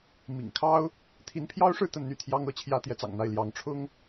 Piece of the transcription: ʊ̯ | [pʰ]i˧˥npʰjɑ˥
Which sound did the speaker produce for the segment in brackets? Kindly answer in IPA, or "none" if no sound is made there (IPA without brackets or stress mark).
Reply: t̪ʰ